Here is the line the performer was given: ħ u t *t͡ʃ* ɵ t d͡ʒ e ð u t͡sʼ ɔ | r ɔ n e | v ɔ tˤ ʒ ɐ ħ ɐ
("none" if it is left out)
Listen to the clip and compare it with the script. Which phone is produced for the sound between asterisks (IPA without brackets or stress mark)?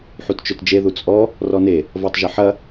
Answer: t͡ʃ